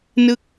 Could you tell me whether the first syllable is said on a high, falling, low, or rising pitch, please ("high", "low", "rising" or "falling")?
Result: falling